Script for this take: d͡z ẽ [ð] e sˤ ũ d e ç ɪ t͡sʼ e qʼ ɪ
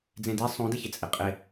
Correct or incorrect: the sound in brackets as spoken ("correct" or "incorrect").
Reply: incorrect